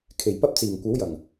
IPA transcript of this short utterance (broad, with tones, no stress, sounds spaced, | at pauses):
kʰ e˨˩ j p ɐ˥ p̚ t͡s iː˨˩ ŋ kʷ ɐ˨˥ w j ɐ˨˩ ŋ